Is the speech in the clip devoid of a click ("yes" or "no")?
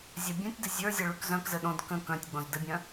yes